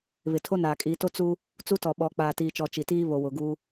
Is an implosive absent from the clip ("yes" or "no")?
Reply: no